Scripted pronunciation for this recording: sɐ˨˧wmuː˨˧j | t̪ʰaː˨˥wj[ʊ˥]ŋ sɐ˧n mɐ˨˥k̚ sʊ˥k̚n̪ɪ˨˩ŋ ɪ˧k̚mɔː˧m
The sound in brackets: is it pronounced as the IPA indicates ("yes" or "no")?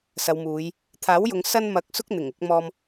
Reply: no